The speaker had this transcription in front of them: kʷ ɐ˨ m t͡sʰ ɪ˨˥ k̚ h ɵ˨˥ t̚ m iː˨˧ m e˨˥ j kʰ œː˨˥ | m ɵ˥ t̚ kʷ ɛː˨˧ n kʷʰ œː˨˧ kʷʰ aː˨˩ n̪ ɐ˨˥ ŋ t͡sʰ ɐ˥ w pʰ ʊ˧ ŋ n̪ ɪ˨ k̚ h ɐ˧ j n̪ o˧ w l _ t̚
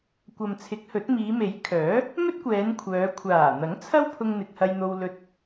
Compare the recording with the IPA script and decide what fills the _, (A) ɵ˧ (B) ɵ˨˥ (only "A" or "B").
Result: A